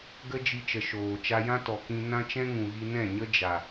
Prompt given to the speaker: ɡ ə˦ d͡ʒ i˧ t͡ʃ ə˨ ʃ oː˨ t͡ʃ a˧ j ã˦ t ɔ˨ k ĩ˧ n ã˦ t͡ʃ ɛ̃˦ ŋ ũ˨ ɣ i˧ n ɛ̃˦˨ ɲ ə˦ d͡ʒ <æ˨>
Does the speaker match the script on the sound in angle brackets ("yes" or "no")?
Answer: no